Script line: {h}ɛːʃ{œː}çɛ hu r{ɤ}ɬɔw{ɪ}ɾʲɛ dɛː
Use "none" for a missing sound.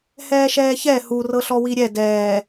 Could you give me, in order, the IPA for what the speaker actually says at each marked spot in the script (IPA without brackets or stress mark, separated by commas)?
h, ɛː, ɤ, i